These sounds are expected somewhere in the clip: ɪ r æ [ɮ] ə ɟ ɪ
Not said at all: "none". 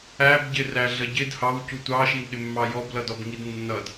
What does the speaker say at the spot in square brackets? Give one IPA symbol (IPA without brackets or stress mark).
ɮ